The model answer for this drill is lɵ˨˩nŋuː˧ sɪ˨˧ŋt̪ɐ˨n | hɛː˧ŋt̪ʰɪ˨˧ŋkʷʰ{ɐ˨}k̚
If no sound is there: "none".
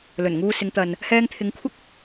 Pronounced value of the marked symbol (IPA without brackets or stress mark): ɐ˥